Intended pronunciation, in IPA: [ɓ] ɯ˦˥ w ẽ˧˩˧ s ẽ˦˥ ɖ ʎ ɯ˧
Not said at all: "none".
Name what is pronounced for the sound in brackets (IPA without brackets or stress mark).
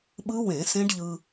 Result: ɓ